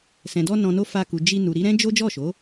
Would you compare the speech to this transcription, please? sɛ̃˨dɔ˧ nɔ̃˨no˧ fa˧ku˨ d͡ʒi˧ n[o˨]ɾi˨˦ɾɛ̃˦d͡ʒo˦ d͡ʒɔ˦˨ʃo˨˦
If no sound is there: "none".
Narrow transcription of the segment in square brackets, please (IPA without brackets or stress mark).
u˨